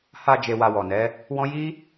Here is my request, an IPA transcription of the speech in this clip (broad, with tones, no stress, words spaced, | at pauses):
ha˧ d͡ʒe˧wa˧wɔ˨nɛ˨˦ | wɔ̃˦ ji˦